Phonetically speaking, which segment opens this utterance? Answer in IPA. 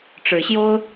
ʈ͡ʂ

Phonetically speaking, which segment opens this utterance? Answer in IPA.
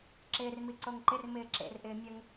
ǁ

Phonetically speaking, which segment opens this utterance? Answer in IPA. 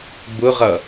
b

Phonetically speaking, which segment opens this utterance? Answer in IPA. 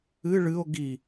ɨ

